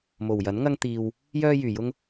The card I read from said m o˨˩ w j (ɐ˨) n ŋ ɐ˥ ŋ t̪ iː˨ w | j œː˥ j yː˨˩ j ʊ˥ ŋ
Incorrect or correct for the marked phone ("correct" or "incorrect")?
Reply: incorrect